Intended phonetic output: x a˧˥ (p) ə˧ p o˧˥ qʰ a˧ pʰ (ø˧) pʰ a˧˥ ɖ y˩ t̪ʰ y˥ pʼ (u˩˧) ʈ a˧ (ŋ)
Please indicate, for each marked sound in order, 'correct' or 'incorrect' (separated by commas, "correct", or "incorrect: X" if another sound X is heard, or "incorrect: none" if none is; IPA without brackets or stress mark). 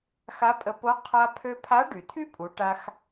incorrect: pʼ, correct, correct, incorrect: x